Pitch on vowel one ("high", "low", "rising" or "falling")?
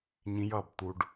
rising